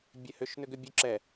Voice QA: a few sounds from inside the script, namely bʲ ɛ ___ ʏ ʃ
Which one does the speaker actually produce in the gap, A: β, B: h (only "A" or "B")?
B